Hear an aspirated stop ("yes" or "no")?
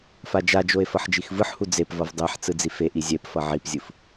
no